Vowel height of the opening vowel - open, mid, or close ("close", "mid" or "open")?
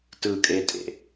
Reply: close